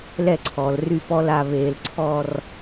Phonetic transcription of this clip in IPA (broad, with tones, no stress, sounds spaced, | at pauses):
l ɛ˥˩ ǀʰ ɔː˩ l r y˥˩ p ɔ˥˧ l a˥˩ β eː˧˩˧ l ǀʰ ɔ˥˧ r